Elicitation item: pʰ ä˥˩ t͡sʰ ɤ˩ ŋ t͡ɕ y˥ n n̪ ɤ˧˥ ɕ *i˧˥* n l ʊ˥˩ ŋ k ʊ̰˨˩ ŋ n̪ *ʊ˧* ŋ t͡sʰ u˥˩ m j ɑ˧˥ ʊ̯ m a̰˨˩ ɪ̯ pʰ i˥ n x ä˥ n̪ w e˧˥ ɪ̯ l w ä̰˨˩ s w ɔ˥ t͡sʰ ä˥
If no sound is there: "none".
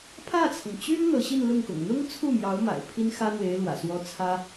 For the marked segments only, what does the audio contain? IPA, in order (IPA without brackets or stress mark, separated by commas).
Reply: i˥˧, ʊ˥